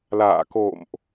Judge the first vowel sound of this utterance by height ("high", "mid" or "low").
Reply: low